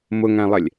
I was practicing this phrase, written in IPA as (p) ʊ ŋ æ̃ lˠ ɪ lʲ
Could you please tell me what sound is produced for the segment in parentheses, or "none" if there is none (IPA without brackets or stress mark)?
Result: m